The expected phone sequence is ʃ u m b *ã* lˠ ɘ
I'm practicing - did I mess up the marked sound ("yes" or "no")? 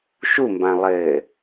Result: no